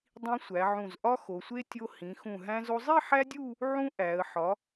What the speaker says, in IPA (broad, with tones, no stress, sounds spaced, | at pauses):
dˤ ĩ˧ sʷ æ˩˧ ʕ ũ˧˩ z ʔ ɒ˥ x o˩˧ sʷ e˥ tʲ o˧ h ĩ˩˧ x ũ˧˩ ɦ æ̃˧ z o˧ zˤ i˥˧ ħ æ˥ dʲ u˥˧ | ʕ ũ˥ ʔ æ˩˧ ə̯ ħ ɒ˩˧